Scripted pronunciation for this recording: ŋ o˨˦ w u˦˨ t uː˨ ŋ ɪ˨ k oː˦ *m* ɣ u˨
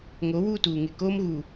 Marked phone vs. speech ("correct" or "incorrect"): correct